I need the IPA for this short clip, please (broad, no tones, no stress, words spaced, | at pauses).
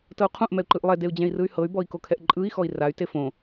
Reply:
tɤu̯qʰũʔ mɛu̯ǃɯʔlˠɛ deu̯d͡ʑɛ̃i̯rɯy̯hɤy̯ bɔi̯kokʰɛʔǃʼɯi̯ xɔi̯ray̯ tefõ